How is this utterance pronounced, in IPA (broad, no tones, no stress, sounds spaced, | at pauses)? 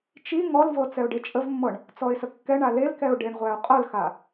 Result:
t͡ʃ i ŋ ɔ l v ɤ t͡s ɛ ʊ̯ ɖ e t͡ʃʼ ə v mː ɤ ɳ | t͡s ɔ ɪ̯ s ə kː ɛ ɳ a l e l k ɛ ʊ̯ ɖ e ɳ ʁʷ æ ʊ̯ qʼ ɤ l x a